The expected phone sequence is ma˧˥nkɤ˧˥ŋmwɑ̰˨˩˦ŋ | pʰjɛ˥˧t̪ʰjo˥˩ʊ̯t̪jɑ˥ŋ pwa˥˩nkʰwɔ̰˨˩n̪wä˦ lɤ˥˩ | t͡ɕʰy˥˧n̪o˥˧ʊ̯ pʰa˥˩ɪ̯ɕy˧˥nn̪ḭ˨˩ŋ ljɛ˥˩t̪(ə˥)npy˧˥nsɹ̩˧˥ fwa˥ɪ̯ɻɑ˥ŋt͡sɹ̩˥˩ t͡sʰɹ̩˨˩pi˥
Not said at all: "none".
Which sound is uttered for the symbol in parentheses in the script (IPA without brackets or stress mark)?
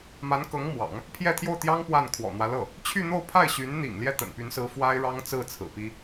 ə̰˨˩